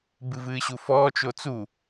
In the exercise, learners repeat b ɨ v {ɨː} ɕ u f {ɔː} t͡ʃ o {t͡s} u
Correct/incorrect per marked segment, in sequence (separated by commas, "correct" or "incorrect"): correct, correct, correct